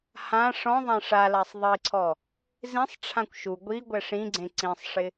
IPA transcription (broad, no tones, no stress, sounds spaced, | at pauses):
h ã ʂ ɔ̃ ðˤ ã ʂ a l a sˤ ðˤ i ǀʰ ɔ | z ĩ sˤ ʈ͡ʂʰ ã kʷ ʃ u ɡʷ i ɡʷ ɛ ʂ ĩ ɡ͡ǀ ẽ ǀ ĩ sˤ ʂ ɪ